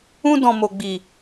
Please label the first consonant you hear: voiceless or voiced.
voiced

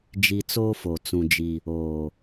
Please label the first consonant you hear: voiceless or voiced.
voiced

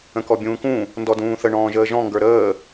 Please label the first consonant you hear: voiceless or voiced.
voiceless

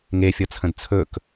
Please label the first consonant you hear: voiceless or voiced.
voiced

